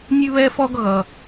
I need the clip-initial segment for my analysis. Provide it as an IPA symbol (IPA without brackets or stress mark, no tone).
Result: nʲ